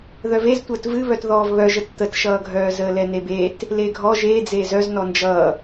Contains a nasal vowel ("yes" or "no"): no